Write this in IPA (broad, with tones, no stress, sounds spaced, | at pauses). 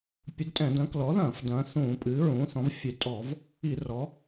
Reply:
pʲ ɨ˩˥ d tʼ ɛ̃˧˩˧ d ɐ̃˩˥ k l ɔ˩˥ ð ɐ̃ː˧˩˧ f d ɐ̃ː˩˥ θ ũː˧˩˧ pʼ ɨː˩˥ ɹ ũː˩˥ θ ɔ̃˩˥ v fʲ e˧˩˧ tʼ ɔ˧˩˧ v | i˧˩˧ r ɔ˩˥